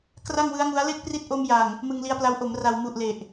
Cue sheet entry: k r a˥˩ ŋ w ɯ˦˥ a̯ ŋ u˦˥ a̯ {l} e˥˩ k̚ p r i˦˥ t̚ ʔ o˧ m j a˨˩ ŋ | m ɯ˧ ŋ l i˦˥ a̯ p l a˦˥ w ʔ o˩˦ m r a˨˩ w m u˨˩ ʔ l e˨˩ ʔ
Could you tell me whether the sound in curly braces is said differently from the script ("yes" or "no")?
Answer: no